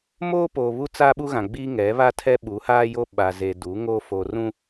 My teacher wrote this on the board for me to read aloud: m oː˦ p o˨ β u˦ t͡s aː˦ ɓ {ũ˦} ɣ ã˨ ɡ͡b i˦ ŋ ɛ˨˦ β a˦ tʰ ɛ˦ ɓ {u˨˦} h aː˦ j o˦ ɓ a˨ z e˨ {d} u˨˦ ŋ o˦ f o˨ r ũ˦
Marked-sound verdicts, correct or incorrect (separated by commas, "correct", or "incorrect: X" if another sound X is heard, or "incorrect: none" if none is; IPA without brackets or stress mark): incorrect: u˦, correct, correct